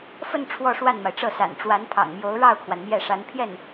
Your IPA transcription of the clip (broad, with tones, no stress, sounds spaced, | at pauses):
f ə˥˧ n ʈ͡ʂʰ w ɔ˥˧ ʂ w a˥˩ n m a˩ ɪ̯ ʈ͡ʂ ɤ˥˩ s a̰˨˩ n ʈ͡ʂ w a˧˥ n pʰ ɑ̰˨˩ ŋ m j o˧˥ ʊ̯ ɻ ɑ˥˩ ʊ̯ kʰ w a˩ n m j ɛ˥˩ ʂ a˧˥ n pʰ j ɛ˥˩ n